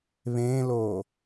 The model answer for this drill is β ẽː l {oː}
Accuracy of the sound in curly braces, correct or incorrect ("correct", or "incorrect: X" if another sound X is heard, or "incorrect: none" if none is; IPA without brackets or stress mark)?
correct